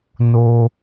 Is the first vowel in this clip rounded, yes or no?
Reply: yes